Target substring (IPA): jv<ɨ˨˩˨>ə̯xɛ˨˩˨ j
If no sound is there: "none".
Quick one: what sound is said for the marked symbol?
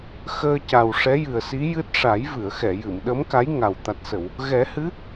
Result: ɨ˨˩˨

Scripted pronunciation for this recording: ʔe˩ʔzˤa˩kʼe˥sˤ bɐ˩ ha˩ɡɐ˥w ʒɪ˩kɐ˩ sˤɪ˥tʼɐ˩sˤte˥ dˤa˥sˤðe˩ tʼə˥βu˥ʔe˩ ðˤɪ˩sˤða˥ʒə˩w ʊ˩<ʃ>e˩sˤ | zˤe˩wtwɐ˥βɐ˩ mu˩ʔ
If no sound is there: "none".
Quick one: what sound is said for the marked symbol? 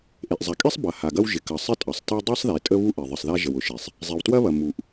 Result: ʃ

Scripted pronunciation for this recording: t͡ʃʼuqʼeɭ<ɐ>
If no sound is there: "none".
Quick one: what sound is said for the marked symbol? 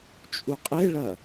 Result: ɐ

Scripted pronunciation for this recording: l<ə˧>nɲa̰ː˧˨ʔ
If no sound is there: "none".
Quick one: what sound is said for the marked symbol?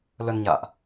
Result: ə˧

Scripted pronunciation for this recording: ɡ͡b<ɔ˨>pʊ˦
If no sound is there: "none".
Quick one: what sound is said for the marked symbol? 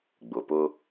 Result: ʊ˨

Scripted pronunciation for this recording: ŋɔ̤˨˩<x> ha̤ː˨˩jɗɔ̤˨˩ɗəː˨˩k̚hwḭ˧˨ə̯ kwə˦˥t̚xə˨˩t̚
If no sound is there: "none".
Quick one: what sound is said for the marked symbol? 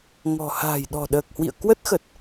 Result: none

